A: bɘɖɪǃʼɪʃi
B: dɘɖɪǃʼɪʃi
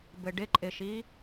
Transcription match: A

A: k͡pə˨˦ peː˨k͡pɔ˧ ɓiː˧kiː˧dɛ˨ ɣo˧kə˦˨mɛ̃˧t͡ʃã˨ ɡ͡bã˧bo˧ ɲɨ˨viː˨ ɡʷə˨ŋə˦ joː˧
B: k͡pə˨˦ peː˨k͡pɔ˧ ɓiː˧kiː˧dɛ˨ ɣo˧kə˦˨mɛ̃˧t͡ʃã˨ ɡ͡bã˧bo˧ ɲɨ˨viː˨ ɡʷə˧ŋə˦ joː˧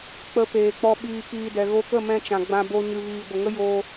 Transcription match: A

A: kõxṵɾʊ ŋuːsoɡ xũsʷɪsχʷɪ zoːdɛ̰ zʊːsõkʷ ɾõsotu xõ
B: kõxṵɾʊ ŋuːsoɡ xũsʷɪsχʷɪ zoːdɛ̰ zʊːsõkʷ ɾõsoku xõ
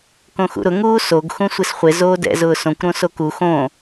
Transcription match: B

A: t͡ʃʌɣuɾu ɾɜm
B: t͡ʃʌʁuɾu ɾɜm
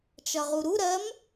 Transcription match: B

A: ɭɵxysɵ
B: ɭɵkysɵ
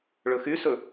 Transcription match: A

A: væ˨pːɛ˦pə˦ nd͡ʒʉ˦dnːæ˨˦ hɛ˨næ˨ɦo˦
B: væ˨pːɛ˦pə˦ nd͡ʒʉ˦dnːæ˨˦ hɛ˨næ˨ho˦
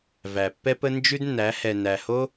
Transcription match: B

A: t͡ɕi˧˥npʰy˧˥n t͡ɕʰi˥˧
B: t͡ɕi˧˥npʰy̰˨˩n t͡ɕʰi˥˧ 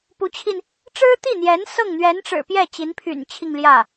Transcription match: B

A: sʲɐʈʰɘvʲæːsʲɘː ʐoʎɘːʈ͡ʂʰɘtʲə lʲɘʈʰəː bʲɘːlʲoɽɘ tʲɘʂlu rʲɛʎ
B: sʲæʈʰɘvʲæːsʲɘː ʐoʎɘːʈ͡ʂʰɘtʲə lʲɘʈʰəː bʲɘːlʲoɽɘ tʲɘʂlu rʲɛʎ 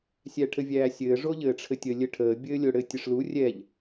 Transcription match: B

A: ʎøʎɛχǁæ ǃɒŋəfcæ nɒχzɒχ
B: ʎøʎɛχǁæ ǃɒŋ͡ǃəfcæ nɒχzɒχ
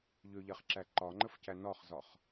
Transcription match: B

